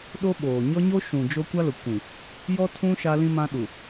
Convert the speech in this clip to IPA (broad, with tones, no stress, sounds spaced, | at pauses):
ɗ o˦ ɓ oː˨ ɲ ɔ˦ ɲ o˦ ʃ ũ˨ d͡ʒ o˦ kʷ a˦ l ʊ˨ kʷ ĩ˨ | j ɔ˦ tʰ ũ˦ ʃ a˦ l ĩ˦ m ã˦ ɗ u˨